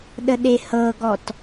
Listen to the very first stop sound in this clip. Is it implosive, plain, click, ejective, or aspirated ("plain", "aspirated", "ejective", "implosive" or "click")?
implosive